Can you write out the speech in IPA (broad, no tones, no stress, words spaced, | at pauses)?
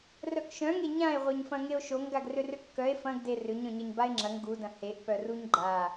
rœkʃœ̃ŋe ɲãe̯ ʁʷœɲfɐ̃ŋeo̯ʃoŋ ɡaɡrʏrʏkːœe̯ fɐ̃ɡde rʏɲœ̃ɲɐɲ bae̯ŋ͡ǁɐŋ ɡudɐ̃ heʔpœ ruɲɡ͡ǃa